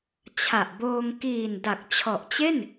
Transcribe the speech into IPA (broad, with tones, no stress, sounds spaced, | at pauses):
t͡ɕʰ a˨˩ ʔ b oː˧ ŋ k iː˨˩ n d a˨˩ k̚ t͡ɕʰ ɔ˨˩ ʔ t͡ɕ e˥˩ n